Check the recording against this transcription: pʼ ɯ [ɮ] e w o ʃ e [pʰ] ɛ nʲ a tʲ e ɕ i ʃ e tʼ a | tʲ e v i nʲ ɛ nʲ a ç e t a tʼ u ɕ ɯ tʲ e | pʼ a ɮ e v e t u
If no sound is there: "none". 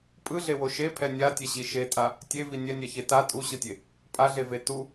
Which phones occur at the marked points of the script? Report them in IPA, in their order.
ɮ, pʰ

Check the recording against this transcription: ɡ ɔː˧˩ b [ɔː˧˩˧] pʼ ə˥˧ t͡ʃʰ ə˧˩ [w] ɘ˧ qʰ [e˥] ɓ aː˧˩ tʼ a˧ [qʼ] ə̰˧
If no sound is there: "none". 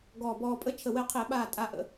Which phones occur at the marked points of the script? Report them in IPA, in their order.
ɔː˧, w, e˧˩˧, ʔ

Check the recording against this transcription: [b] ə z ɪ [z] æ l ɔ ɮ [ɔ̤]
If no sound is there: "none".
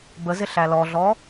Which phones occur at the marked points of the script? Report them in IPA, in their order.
b, ɬ, ɔ

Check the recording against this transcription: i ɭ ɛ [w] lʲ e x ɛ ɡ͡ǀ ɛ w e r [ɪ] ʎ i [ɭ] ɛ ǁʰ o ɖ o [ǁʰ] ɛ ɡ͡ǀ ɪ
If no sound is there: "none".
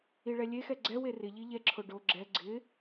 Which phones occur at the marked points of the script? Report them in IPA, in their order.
none, ɪ, ʎ, ɡ͡ǁ

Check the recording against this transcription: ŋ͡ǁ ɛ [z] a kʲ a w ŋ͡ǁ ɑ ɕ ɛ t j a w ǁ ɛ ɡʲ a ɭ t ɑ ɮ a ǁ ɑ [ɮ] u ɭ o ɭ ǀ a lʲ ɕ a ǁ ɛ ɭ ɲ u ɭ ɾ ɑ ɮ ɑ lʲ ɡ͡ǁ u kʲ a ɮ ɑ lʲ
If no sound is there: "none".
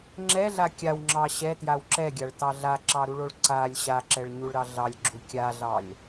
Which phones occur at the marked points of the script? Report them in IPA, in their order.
ɮ, ɾ

